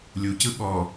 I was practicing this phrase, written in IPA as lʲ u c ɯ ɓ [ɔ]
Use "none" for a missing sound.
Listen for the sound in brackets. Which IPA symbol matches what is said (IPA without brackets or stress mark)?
ɔ